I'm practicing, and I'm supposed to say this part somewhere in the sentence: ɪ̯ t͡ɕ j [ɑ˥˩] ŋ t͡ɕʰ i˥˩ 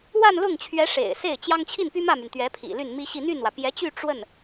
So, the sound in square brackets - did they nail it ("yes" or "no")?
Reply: no